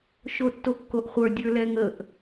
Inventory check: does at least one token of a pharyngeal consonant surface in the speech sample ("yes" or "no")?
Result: no